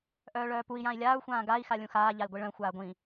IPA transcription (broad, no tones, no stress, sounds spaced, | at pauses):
ʔ œː ɭ œː p u i̯ j ã i̯ lʲ aː u̯ xʷ ãː ɡ a i̯ x a lʲ ũ x aː ʎ a i̯ ɡʷ i ɭ œ̃ xʷ aː ɡʷ ĩ